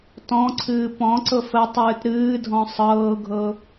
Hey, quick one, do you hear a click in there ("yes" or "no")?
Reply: yes